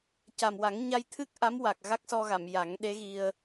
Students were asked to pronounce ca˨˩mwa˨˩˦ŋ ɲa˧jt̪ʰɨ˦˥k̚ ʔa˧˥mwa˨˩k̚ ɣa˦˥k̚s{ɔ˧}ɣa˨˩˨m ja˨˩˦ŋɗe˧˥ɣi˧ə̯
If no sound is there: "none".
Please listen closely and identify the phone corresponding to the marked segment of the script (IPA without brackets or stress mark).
ɔ˧